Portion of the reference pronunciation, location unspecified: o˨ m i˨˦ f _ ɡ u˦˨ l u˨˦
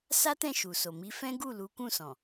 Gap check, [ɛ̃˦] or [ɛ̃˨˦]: ɛ̃˦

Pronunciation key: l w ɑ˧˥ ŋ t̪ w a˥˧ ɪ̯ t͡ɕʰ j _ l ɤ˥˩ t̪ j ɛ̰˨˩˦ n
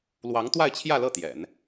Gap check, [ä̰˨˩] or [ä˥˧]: ä˥˧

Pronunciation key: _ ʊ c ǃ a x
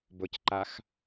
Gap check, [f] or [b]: b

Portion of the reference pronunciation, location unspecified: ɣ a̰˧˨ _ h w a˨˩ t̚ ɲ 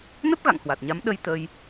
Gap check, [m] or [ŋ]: ŋ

